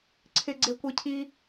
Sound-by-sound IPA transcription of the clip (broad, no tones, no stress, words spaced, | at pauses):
ǀʰɪɡ͡ǀe kʷicʰi